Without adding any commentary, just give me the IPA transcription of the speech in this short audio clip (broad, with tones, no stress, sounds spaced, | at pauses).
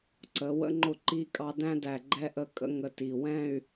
ǀ ə˩˧ w ə̰˧ ŋ͡ǃ ʊ˥˧ ǃ i˥ kʼ ɑ˥ d æ̃˥ d æ˧˩ ɡ͡ǃ ɛ˥ ʔ ə˥˧ kʼ ə̰˥ ŋ ə˧ t i˧˩ w ɛ̃˥˧ y̯